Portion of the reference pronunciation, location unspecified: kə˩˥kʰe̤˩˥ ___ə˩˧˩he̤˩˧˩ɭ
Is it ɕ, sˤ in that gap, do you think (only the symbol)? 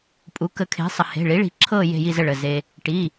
sˤ